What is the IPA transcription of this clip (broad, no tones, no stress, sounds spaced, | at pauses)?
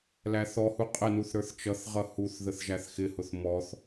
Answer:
l æ θ ɔ h u qʼ ə n u θ ɾ ə˞ θ t͡ʃ ʌ θ ʁ ʌ h u θ ð ə θ ʒ æ θ x ɪ h ʊ θ m ɔ θ